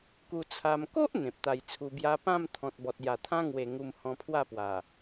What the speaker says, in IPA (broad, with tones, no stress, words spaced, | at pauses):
ku˧t͡sʰa˧m ko˦ʔ n̪ẽ˨p̚t̪a˧jt͡sʰu˧bja˦ pã˥˧m t̪ʰɔ̃˨t̚bɔ˨t̚ ja˨˩t̪ʰã˦ŋwe˨˩ ŋu˧m hɔ̃˧pʰwa˥˧pwa˨˩